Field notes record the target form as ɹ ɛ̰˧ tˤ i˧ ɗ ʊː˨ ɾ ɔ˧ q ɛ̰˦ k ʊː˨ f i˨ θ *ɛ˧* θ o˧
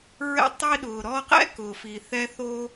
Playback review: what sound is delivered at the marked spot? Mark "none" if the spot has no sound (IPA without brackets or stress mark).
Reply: ɛ˧